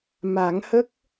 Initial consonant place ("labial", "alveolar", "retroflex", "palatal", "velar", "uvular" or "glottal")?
labial